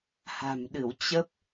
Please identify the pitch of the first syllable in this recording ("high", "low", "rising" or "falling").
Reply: low